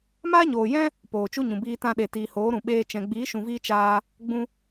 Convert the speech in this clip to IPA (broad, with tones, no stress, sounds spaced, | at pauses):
m aː˦ ɲ oː˨ j ɛ̃˦ | p oː˨ t͡ʃ u˦ ɲ ũ˨ b iː˧ t ã˧ ɗ e˨ t iː˨ h oː˨˦ ɾ ũ˨ ɓ eː˧ t͡ʃ ɛ̃˨ ɡ͡b iː˨˦ ʃ ũ˨ v iː˧ t͡ʃ aː˧ | ɡ͡b ũ˧